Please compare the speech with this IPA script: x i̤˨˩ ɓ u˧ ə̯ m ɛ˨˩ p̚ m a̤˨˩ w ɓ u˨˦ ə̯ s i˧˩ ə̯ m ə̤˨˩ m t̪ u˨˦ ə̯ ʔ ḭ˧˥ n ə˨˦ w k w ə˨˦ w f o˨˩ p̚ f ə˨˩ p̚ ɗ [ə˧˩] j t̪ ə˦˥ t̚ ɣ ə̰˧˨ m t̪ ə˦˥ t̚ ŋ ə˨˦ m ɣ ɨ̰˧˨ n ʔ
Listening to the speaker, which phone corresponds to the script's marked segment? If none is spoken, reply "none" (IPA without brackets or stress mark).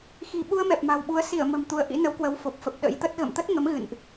ə̰˧˥